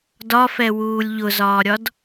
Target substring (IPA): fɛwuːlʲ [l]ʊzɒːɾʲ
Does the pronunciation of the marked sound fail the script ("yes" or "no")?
yes